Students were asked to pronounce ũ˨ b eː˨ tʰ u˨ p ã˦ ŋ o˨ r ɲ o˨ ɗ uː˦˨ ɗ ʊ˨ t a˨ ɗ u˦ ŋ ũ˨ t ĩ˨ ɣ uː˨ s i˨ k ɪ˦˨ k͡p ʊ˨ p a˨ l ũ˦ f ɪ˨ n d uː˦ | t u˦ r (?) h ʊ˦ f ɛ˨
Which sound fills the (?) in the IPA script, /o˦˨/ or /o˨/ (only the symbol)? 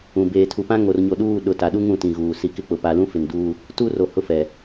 o˨